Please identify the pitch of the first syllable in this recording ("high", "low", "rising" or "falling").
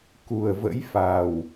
low